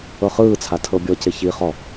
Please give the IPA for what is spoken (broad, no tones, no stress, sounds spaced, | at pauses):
ɤ χ ɯː t͡sʰ a tʰ ɤ bʲ ɔ c e ç i χ ɔ